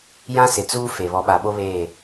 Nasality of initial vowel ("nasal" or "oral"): nasal